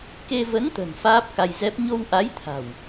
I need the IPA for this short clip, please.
ke˧ və˨˦nt̪ə̤˨˩n faː˦˥p̚ka˧jzɛ˦˥p̚ ɲo˧w ʔa˨˦jt̪ʰa̤˨˩w

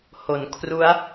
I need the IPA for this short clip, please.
ho˩˦n kʰru˦˥a̯

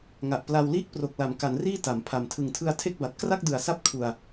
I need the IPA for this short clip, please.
ŋa˨˩ʔpla˧w liː˥˩k̚pro˨˩k̚la˩˦m ka˩˦nriː˥˩ ta˩˦m pʰa˨˩m tʰɯ˨˩ŋtʰɯ˧a̯tʰe˥˩k̚ba˨˩t̚ kra˥˩k̚dɯ˨˩a̯sa˦˥p̚ kʰu˧a̯

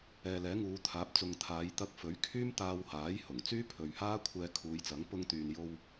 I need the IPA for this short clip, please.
ɛː˨lɛː˨˥ŋuː˨˧ t̪ʰaː˨˥p̚t͡sʊ˨ŋt̪ʰaː˨˧j t̪ɐ˧k̚fɵ˨˥ɥ kʰyː˥mt̪aː˧whaː˨˥j hʊ˨˩ŋ t͡syː˥pʰɵ˨ɥhaː˥kʷʰɛː˧ kʰuː˨˧jt͡sɐ˨˥ŋ pʊ˧ŋt̪yː˨njo˧w

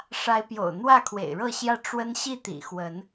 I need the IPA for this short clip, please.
ʂa˨˦ɪ̯pjo̰˨˩ʊ̯ n̪wä˥˨kʰwḛ˨˩ɪ̯ɻɤ˥˨ɕjä˦ ʈ͡ʂwə˦n ɕi˥˨t̪ḭ˨˩xwə˨˦n

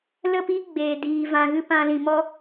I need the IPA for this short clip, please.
lə˦˨pi˦ ɡ͡beː˨ diː˨ vã˧ɣɨ˦ pã˧lĩ˨mɔ˦

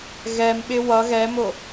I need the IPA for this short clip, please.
ɣɛmɓɪ wʌ ɣɛmʊ

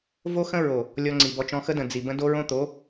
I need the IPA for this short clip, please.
vo˦xə̃˦ɹo˨ | lʲɔ˧ŋ͡ǀi˨bɔ˧t͡ʃɔ̃˧ xə˦də̃˨ d͡zi˨bə̃˦do˦ɹõ˦ t̪o˨˦

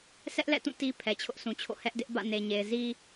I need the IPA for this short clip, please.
sʰɛ˦ʔlɛ̰˦˨tũ˦˨ ti˦ pʰɛ˨t͡ɕʰʊ˦ʔsʰũ˨t͡ɕʰo̰˦˨ hɛ˦ʔdɪ˦ʔ bä̰˦˨ne˨ɲe˨ɪ̯ zi˦

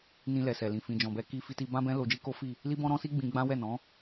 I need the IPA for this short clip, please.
nĩ˧lɛ˨sɛ˨lĩ˨ fĩ˨d͡ʒɔ̃˨bɛ˧ ki˧fi˧ti˧ bã˦bɛ̃˦ lo˧d͡ʒi˦ ko˦fi˦˨ | li˦bɔ̃˦ɾɔ̃˦si˦ ɡ͡bĩ˧ɡ͡bã˦wɛ˦˨nɔ̃˨˦

